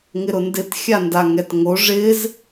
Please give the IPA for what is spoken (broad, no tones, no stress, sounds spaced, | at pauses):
ŋ ɪ ɾ ʊ n d ɪ t xʲ a n d a ŋ ɛ t ŋ o ʐ ɪ z